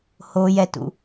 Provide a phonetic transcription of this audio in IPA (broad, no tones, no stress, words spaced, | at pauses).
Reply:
ho jɛtṵ